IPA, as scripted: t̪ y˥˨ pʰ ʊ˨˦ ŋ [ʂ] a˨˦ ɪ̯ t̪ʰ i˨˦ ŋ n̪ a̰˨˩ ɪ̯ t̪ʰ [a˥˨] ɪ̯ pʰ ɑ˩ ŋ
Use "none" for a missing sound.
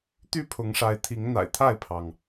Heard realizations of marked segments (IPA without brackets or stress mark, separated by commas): ʂ, a˥˨